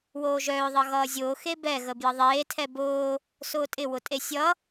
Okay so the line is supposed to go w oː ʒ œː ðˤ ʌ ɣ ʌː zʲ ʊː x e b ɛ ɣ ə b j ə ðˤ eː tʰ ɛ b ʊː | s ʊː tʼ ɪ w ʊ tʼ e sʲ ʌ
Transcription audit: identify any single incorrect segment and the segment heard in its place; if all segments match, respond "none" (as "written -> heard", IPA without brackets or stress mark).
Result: none